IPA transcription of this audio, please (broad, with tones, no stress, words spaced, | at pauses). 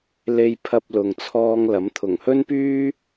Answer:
le˧jpʰɐ˧p̚ lʊ˨ŋt͡sʰɔː˧ŋ lɐ˨˥mt̪ʰʊ˨˩ŋhɵ˥npyː˥